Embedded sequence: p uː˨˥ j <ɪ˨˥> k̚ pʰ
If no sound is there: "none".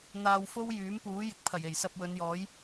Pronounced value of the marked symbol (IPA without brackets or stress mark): ɪ˨˥